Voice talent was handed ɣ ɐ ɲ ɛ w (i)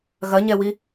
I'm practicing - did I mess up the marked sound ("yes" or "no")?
no